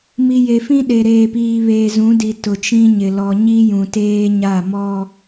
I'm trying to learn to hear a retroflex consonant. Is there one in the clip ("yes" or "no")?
no